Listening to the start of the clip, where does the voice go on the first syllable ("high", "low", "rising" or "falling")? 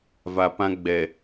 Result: low